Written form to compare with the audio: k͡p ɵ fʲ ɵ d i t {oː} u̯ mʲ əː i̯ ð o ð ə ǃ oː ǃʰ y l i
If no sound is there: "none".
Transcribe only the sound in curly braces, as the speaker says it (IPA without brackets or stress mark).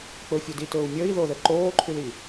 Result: ɵː